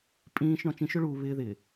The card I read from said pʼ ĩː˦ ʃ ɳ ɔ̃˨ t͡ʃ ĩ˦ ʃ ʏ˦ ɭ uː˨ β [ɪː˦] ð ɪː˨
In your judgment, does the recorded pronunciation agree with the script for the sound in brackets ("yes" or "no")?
yes